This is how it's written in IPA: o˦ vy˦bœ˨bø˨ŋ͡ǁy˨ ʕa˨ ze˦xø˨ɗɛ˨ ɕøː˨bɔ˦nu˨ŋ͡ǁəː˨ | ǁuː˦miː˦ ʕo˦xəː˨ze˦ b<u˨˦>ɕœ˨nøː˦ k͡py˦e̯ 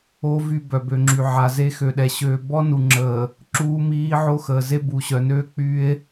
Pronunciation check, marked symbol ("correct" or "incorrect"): incorrect